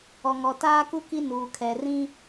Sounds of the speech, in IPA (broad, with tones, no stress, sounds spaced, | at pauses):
ɔ˨ ŋ ɔ˨ t aː˦ k u˦ k i˦ n uː˨ kʰ ɛ˨ r ĩ˦